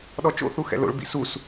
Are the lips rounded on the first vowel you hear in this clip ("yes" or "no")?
yes